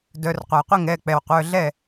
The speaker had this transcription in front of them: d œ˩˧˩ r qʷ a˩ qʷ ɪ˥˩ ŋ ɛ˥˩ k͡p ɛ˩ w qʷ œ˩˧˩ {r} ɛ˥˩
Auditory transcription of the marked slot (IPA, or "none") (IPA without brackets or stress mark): ɮ